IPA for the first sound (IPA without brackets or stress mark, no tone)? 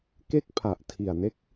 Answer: k